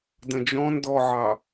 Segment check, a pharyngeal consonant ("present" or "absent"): present